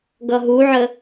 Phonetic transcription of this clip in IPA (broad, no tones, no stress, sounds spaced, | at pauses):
ɡ ʌ ɦ u ʕ ə